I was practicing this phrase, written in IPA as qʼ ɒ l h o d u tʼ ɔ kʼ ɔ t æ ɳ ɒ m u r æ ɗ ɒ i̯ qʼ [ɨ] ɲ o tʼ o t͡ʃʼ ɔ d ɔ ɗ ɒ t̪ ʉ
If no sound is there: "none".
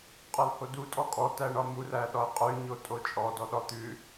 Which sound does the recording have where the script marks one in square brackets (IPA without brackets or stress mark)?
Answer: ʉ